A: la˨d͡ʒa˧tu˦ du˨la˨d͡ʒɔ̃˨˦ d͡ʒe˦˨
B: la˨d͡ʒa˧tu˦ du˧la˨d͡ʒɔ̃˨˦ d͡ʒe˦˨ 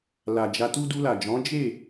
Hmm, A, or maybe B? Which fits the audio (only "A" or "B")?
B